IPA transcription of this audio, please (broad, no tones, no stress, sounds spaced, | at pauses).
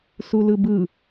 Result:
s u l ɯ b ɯ